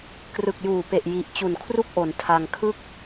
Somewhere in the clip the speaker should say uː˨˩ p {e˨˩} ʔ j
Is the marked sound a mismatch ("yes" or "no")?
no